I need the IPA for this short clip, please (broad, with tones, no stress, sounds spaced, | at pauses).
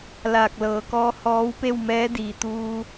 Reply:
l aː˧˩ k̚ l ɤː˩˧ k ɔː˧˥ h ɔː˧˥ w p e˥˨ w m ɛː˧˥ d iː˩ t̪ uː˧